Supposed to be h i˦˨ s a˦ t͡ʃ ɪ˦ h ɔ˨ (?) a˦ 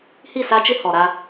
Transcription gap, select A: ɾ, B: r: A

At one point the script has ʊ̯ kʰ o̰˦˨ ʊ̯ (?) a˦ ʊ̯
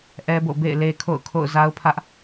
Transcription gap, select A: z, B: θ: A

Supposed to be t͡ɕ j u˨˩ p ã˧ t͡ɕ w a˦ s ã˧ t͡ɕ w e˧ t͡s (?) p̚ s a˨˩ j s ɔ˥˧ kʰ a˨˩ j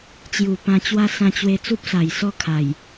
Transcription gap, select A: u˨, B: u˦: B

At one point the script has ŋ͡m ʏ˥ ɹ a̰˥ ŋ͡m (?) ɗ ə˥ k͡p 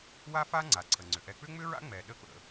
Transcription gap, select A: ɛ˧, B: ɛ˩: A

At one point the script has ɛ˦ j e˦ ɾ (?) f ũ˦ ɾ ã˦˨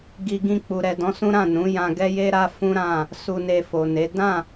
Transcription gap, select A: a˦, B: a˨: A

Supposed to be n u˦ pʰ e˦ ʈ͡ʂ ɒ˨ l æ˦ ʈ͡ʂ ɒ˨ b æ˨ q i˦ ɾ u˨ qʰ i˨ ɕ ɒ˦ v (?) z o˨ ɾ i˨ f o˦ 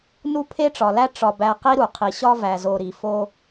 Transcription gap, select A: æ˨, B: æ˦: A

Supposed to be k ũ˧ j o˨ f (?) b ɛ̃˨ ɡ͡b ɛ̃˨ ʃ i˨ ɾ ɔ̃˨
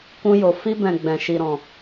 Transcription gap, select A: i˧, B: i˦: A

